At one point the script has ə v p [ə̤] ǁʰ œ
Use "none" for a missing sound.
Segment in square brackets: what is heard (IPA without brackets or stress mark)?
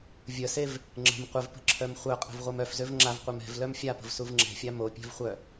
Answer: ə̤